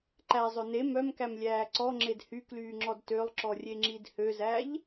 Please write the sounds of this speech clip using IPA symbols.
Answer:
ǃ æ zˤ ø n e m œ m k æ m lʲ æː ǀ ɔ ŋ͡ǁ e d h y k l yː ŋ͡ǁ ɔ d t ø lˠ ǁ ɔ rʲ e ŋ͡ǁ i d h ø z æ ʎ

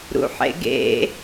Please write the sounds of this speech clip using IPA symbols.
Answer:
ɾ ṵ ħ ḛ ɡ ḛ

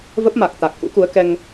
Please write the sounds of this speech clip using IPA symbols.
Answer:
v ə˦˥ p̚ m a˨˩ k̚ t̪ a˨˩ k̚ ʔ ṵ˧˥ k u˨˦ ə̯ k ɛ˧ ŋ

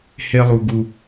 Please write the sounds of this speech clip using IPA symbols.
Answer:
h e˧ lˠ u˨ ɡ u˨

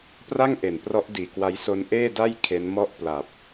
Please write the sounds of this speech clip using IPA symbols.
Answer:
p r a˥˩ ŋ ʔ e˨˩ n p r ɔ˦˥ ʔ d iː˨˩ k w a˦˥ j s o˦˥ n ʔ eː˥˩ d a˥˩ j kʰ e˦˥ n m ɔ˥˩ ʔ p l a˨˩ p̚

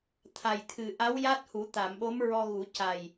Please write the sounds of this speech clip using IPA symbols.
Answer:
t̪ʰ a˨˩ j t̪ʰ ɨ˨˩ ʔ a˧˥ w j a˦˥ t̚ h u˨˩˦ t̪ a˨˩˨ m ɓ o˧˥ m ɹ ɔ˧ ɣ u˨˩˦ c a˨˩ j

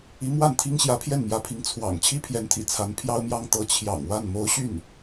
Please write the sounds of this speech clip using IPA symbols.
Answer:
i˧˥ m w a˥˩ n t̪ʰ i˥ ŋ ɕ j ä˧˥ pʰ j ɛ˥˩ n m j ä˧˥ pʰ i˧˥ ŋ t͡sʰ w ɑ̰˨˩ ŋ t͡ɕʰ i˥ pʰ j ɛ˧˥ n t̪ʰ ḭ˨˩ t͡sʰ a˧˥ n pʰ j ɑ˥ ʊ̯ m j ɑ˥ ŋ t̪ ɤ˧˥ t͡ɕʰ j ɑ̰˨˩ ŋ w a˥˩ n m o˧˥ ʊ̯ ɕ y˥˩ n

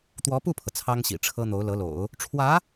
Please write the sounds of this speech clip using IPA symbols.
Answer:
t̪ w ɔ˧˥ p u˥˩ pʰ ɤ˩ t͡sʰ ɑ˥ ŋ ɕ ḭ˨˩ ʈ͡ʂʰ ɤ˥ n̪ o˧˥ ʊ̯ l ɤ˧˥ l o̰˨˩˦ ʊ̯ | ʈ͡ʂʰ w ä˧˥

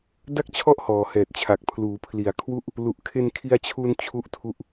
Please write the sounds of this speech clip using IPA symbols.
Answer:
d a˥˩ k̚ t͡ɕʰ ɔ˥˩ ʔ h ɔː˨˩ h ɛː˨˩ t̚ t͡ɕʰ a˨˩ k̚ pʰ l uː˩˦ pʰ l i˨˩ a̯ kʰ w u˥˩ ʔ | l u˨˩ ʔ kʰ e˧ n kʰ i˧ a̯ t͡ɕʰ u˧ n t͡ɕʰ u˥˩ ʔ tʰ u˥˩ ʔ

